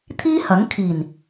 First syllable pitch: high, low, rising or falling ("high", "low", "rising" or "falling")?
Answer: high